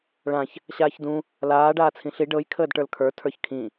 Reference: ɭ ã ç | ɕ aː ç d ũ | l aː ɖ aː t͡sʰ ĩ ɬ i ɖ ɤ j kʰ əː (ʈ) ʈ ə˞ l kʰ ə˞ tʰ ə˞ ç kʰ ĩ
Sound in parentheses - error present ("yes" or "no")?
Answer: yes